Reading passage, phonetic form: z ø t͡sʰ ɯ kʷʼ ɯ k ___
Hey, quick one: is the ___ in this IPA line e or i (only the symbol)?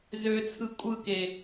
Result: e